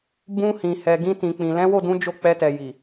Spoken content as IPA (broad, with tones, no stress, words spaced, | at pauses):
bũ˧hĩ˨ hɛ˨ ɡĩ˧tĩ˨k͡pĩ˨ lɛ̃˨˦wo˦˨dũ˨˦ d͡ʒo˦˨k͡pɛ˧tɛ˨ ji˨